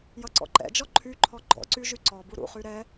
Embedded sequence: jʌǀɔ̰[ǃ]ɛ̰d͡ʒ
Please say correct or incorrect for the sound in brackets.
correct